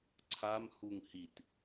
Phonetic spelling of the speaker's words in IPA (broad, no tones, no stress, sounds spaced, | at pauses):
ǀʰ a m h u ŋ h i t